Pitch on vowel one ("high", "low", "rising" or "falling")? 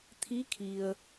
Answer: rising